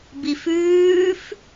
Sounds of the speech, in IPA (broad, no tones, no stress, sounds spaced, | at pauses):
b i f ʉː f